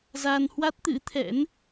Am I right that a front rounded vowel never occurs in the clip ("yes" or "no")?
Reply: yes